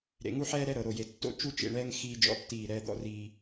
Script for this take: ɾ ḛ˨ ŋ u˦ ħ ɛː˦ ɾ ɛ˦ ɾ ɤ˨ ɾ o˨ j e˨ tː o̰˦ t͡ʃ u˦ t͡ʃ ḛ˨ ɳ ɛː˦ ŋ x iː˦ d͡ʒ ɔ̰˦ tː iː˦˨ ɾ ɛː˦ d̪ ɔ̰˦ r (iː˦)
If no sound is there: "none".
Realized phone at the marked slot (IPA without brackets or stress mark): iː˦